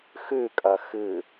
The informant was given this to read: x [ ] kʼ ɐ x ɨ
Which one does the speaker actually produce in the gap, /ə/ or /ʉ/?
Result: ʉ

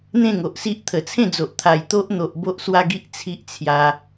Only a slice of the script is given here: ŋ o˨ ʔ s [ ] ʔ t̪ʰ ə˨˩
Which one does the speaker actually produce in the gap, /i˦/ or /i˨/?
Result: i˦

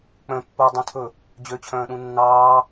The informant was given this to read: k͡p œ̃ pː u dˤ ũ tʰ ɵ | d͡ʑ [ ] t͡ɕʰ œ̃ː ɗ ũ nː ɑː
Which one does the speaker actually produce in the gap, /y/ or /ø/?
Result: ø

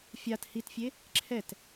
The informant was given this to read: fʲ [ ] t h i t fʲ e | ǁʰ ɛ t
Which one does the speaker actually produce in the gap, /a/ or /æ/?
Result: a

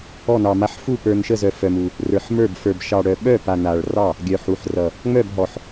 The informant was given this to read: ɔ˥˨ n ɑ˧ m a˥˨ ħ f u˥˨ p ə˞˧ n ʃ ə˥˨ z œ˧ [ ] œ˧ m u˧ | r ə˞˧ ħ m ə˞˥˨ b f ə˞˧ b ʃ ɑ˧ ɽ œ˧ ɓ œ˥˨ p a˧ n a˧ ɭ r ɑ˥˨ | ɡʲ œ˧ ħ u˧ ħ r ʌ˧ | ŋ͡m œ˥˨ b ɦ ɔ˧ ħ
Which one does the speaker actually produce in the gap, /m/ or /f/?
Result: f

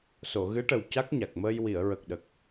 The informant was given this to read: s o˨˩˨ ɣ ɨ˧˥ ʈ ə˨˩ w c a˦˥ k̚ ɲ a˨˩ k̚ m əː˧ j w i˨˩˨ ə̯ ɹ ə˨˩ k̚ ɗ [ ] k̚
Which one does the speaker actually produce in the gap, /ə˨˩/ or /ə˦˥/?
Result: ə˨˩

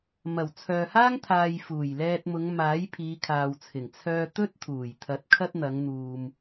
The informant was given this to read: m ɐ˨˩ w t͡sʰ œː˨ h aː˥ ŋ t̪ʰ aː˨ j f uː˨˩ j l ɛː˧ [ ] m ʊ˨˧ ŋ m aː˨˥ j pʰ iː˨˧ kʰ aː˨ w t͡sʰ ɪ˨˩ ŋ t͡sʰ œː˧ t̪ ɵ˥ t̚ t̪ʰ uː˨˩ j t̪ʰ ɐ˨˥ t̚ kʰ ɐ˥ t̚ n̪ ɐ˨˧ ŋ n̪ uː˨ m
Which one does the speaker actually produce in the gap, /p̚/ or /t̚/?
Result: t̚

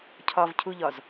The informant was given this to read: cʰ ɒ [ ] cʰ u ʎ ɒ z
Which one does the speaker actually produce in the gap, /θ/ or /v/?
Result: v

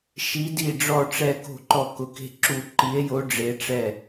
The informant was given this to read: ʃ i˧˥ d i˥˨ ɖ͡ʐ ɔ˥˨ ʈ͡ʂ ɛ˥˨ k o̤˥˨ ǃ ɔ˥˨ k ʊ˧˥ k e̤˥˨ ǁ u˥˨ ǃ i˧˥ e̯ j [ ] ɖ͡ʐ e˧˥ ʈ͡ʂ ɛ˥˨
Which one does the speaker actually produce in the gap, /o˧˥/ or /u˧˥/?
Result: o˧˥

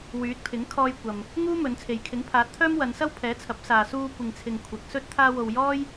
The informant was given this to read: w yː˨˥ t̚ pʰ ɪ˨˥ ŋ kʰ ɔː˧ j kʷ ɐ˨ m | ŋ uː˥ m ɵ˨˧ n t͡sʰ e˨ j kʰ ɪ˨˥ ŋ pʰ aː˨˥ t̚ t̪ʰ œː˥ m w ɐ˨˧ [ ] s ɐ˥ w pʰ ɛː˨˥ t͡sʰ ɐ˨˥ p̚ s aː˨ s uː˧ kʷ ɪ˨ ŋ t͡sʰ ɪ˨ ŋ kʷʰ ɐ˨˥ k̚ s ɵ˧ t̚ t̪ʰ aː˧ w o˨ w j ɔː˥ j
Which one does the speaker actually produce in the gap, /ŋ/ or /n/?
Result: n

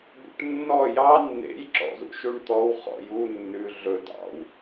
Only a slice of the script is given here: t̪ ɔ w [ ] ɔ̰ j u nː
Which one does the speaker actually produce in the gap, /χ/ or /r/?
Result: χ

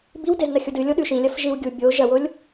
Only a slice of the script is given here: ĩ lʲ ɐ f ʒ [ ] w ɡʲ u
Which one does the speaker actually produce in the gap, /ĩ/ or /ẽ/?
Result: ĩ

